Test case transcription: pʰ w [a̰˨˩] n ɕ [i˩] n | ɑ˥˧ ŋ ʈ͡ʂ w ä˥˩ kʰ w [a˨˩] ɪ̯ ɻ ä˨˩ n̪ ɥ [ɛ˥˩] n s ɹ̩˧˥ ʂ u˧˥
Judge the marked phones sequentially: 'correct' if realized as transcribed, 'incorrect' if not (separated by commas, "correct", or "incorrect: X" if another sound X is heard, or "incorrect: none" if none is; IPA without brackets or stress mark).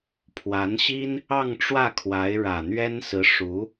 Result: incorrect: a˧˥, incorrect: i˥, incorrect: a˧˥, incorrect: ɛ˥